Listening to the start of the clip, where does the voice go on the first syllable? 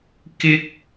high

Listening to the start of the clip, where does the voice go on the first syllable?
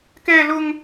high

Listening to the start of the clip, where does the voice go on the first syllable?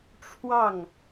falling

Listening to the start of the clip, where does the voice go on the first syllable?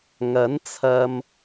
rising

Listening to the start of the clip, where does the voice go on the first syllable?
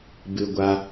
high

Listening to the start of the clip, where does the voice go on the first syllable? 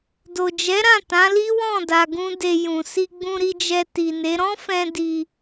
low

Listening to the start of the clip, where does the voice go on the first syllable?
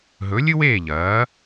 rising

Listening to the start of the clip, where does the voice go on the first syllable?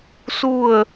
falling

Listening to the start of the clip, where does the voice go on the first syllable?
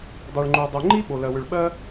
low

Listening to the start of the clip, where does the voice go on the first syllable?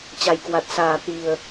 low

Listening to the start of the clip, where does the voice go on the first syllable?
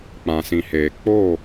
low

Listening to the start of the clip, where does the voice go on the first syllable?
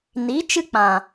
rising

